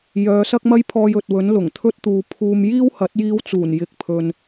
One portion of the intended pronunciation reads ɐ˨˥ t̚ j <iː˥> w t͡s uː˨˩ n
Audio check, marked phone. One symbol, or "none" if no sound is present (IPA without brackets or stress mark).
iː˧